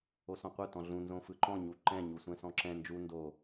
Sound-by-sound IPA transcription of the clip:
o s ɔ̃ qʷ ɯ t ɔ̃ ɮ ũ n z õ f ɯ ǃ ɔ̃ ɲ u ǃ ɛ̃ ɲ u sʷ ɛ̃ s ɔ̃ ǁ ɛ̃ n d͡ʒ u n d o

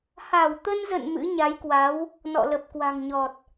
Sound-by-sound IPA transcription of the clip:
h a˧˩ w t̪ ə˧ n z ə̰˧˨ n m ɨ̰˧˥ ɲ a˨˦ j k w a˨˦ w | n ɔ̰˧˨ l ə˨˩ p̚ k w a̤˨˩ ŋ ɲ ɔ˨˩ t̚

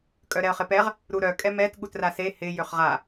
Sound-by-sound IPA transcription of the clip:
kʼ œ ɾ ɛ ə̯ χ e p ɛ ʁ | ɾ u ɾ œ kʼ ɛ m ɛ t ɠ u t r a s e h ɪ j ø χ ʁ a

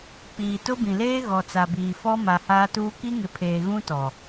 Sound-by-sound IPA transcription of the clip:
k͡p iː˨ t ʊ˦ b ĩ˨ l eː˦ ɣ ɔ˨ t͡s a˨ b iː˨ f ɔ˦ m a˨ h aː˦ t uː˦ k i˦ ŋ ɪ˨ pʰ eː˨ ɣ ũ˦ t ɔ˨

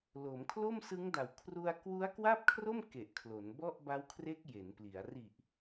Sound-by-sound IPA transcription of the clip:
l o˩˦ m kʰ l o˥˩ m s ɯ˦˥ ŋ d a˩˦ w kʰ r u˧ a̯ k w u˦˥ a̯ k w a˥˩ p̚ kʰ r o˥˩ m k e˨˩ ʔ kʰ l o˩˦ n b ɔ˥˩ ʔ b a˦˥ w kʰ r e˦˥ k̚ j e˩˦ n p l i˩˦ a̯ r i˨˩ ʔ

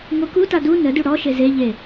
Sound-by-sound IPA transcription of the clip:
ŋʷ i k u t a d u n ə d ʉ ɽ ɔ ʃ e z e ʎ e

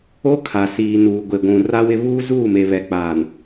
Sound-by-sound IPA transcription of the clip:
o˦ kʰ a˨ s iː˨ n uː˨ ɡʷ e˨ ɡʷ ũ˨ r a˦ w ɪ˦ β uː˦ z uː˦˨ m e˨ β ɛ˨ k͡p aː˨ n

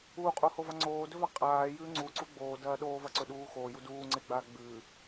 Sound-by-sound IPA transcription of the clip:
uː qʼ o h o v a ŋ͡ǀ oː d ɵ v a qʼ aː j ʉː ŋ͡ǀ u ǀ u ɡ͡b oː d ɐː ɗ oː v ɐ ǀ ɵ ɗ uː x oː j u d uː ŋ͡ǀ e ɡ͡b aː ɡ͡b ʉː

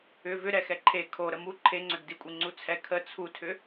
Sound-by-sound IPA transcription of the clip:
ʏ v ʏ ɾ ɛ x ɛ ǃʰ e kʰ o ɾ ə m u ǃʰ e ŋ͡ǀ ʏ ɡ d i kʷʼ e ŋ͡ǀ u t͡sʰ ɛ kʰ ə t͡sʰ u tʰ ʏ

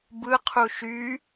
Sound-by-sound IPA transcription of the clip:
b ɯ qʰ u ʃ y

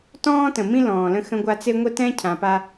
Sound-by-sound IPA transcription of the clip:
t ɔ̃ː˦ t ə̃˨ m ĩ˦ l ɔ̃ː˨ l ə̃˦ x ə̃˦ ɡʷ a˦ t͡s e˦ ŋʷ ə˦ t ɛ̃˦ cʰ ã˨ p a˦

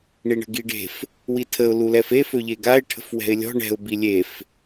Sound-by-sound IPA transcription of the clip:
ɳ i ɳ ə̤ ɡ i ɖ e̤ f | w i tʰ ə ʊ̯ l u l ɛ f e f ø ʎ e ɡ a ɪ̯ ʈʰ ə̤ f w ɛ̤ ɪ̯ lʲ ɔ̤ ɳ ɛ̤ ʊ̯ b i lʲ e f

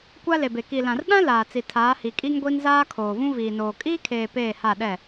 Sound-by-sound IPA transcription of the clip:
kʷ a˦ l e˨ b e˨ k i˨ l ã˨ r ɗ ã˦ l aː˨ t͡s i˨ tʰ aː˨˦ h i˨ kʼ i˦ ŋ ɡʷ i˦ n z aː˦ kʰ oː˨ v ũ˦ v iː˨ n oː˨ kʼ iː˦ kʰ eː˨ p eː˦˨ h a˦˨ ɗ ɛ˦˨

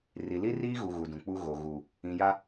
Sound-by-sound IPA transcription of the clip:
r i˨ l i˦ r iː˦ ɣ u˨ ɣ u˨ d ũ˨ k͡p u˦ ɣ o˨ ɣ u˨ | ĩ˨ j a˦

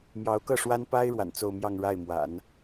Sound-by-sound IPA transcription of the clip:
m j ɑ˧˥ ʊ̯ k ɤ˥˩ ʂ w a˥ n p a˥ ɪ̯ ɻ w a̰˨˩ n t͡s o˥˧ ʊ̯ m j ɑ˥˧ ŋ ɻ a˥˩ ɪ̯ m w a̰˨˩˦ n

